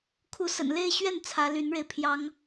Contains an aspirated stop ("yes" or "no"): yes